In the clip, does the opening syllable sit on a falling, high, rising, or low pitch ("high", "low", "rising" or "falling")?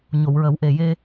low